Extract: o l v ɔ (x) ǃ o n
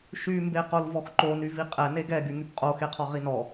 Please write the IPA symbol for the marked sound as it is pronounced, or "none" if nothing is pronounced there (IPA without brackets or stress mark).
x